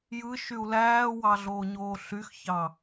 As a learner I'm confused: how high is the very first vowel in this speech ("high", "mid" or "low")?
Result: high